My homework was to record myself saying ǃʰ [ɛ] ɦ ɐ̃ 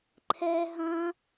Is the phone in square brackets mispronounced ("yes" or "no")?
no